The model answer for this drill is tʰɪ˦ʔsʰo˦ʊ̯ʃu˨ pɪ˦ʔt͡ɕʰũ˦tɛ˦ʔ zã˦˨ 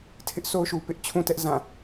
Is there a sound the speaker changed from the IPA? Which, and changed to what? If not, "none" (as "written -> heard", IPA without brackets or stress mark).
none